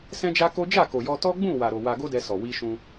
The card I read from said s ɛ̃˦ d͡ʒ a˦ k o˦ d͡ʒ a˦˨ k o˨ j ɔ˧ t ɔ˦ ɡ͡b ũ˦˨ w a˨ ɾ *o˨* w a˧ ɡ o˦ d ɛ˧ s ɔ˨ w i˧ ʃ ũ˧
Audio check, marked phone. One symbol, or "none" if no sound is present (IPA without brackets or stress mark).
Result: o˨